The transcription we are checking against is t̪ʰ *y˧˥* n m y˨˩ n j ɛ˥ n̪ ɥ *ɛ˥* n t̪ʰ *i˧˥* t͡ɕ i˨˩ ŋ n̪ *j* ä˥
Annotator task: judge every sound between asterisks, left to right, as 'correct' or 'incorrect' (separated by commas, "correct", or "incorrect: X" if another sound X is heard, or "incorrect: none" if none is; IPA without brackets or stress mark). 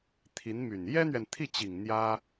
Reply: incorrect: i˧˥, incorrect: ɛ˨, incorrect: i˥˩, correct